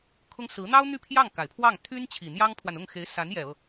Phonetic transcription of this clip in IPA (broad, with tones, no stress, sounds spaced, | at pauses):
kʰ ʊ˥ ŋ s ɹ̩˧˥ n̪ ɑ˥ ʊ̯ n̪ y˥˧ pʰ j ɑ˥˩ ŋ k a˨˩ ɪ̯ pʰ w ɑ˥˩ ŋ t̪ʰ y˥ n t͡ɕʰ i˨˩ n̪ j ɑ˥ ŋ pʰ w a˨ n ʊ˥˩ ŋ x e˧˥ ɪ̯ s a˧˥ n j ɛ˨˩ ɤ˥˩